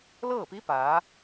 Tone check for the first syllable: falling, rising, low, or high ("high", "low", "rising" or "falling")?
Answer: falling